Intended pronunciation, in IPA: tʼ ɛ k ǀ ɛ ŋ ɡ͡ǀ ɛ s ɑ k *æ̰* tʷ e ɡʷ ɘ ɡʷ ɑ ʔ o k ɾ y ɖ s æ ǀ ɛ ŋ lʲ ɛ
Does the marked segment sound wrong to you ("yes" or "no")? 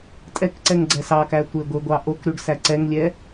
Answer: yes